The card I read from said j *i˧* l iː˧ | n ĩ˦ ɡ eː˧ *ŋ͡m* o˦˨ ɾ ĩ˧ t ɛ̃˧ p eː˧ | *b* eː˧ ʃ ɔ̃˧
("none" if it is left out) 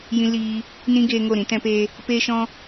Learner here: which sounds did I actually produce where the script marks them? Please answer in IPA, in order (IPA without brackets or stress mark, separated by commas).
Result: ĩ˧, ŋ, p